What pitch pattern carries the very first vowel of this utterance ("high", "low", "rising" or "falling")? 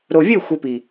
low